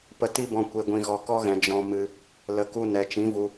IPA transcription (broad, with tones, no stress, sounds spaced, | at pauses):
p ə˧ t i˦ b ɔ̃˧ kʷ e˨ ɡʷ ĩ˨ ɣ ɔ˨ k ɔ˦ ɣ ɛ̃˨ d͡ʒ ɔ̃˧ m ɨ˧ | l ə˨ k u˧ n ɛ˨ t͡ʃ ĩ˨˦ v u˧